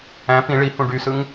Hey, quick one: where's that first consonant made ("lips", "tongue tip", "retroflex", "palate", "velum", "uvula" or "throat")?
lips